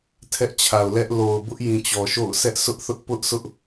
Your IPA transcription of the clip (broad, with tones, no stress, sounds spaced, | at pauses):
tʰ ɛ˦ ʔ t͡ɕʰ a˨ ʊ̯ l ɛ˦ ʔ l o˨ ʊ̯ b ʊ˦ ʔ j ĩ˨ t͡ɕ ɔ˨ ʃ o̰˦˨ ʊ̯ sʰ ɛ˦ ʔ sʰ ʊ˦ ʔ θ ʊ˦ ʔ p ʊ˦ ʔ sʰ ʊ˦ ʔ